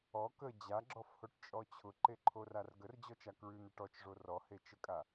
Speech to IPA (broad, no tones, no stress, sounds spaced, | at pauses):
ɔ k ə d͡ʑ a ɡ͡ǁ ɔ f h o ʈ t͡ʃʼ ɔ t͡ɕʰ ʊ ǃ e ǃʰ o r a r ɡ ə r d͡ʑ ɔ t͡ʃ a k ɹ ʉ n̪ ə ʈ ɔ t͡ʃ ʐ o r ɔ h e t͡ʃ ə kʼ a